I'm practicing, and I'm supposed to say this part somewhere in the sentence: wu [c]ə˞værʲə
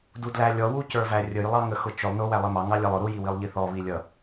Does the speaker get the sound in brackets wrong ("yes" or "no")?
no